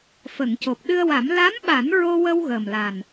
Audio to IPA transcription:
f ə˨˩˨ ŋ c o˨˩ p̚ ɗ ɨ˧ ə̯ w a˨˩˦ m l a˧˥ m ɓ a˨˩˦ n ɹ o˧ w ə˧ w ɣ əː˨˩ m l a˨˩ n

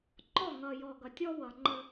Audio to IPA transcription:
ŋ͡ǃ ɔ˦˨ ŋ ʌ˨ j ɔ˨ ɡ ʌ˨ tʲ ɔ˦ w ʌ˨ ŋ͡ǃ ə˦

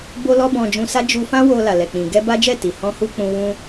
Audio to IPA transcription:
b o˦ l ɔ˦ b ɔ̃˧ d͡ʒ ũ˧ s a˦ d͡ʒ u˧ f ã˦ w o˧ l a˨ l ɛ˨ k͡p ĩ˨ ɡ ɛ˧ b a˦ d͡ʒ ɛ˦˨ t i˨ h ɔ̃˧ h u˧ k͡p ũ˧ w ũ˦

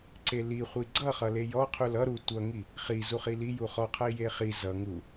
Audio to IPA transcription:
ǀ e l i χʷ i ɡ͡ǀ ʌ χ ʌ l e j ɔ qʰ u l ʌ ɾ u tʷ ʌ ŋ i | χ i z u χ i l i j u χ ɔ qʰ ʌ i̯ j e χ i z ʌ ŋ u

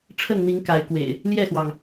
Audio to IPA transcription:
ʈ͡ʂʰ ə˥˨ n n̪ i˨˦ ŋ k a˨˦ ɪ̯ k w ḛ˨˩ ɪ̯ | l j ɛ˥˨ x w ɑ˩ ŋ

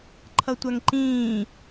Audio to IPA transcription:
ǃʰ ʌ tʷ a ŋ ǃ ĩː

